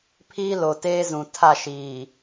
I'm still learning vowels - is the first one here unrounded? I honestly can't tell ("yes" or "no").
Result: yes